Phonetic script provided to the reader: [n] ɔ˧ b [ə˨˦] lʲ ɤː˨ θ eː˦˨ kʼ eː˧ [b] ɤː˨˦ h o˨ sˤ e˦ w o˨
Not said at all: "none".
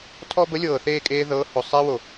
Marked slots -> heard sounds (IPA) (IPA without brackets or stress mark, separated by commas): tʰ, ə˨˦, ð